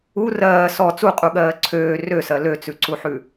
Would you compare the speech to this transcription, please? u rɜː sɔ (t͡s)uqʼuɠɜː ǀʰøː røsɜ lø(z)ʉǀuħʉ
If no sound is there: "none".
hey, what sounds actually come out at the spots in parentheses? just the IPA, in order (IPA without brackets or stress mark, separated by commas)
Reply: t͡s, t͡s